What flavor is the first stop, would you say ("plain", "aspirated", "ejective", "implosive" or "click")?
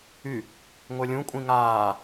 ejective